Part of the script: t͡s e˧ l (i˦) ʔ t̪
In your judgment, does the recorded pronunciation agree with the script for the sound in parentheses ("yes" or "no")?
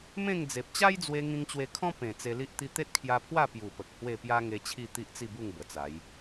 yes